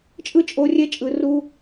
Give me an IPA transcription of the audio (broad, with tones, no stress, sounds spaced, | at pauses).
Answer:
t͡ʃʼ ɯ˦ t͡ʃʼ o˧ rʲ ɛ˦ t͡ʃʼ ɯ˨ r u˦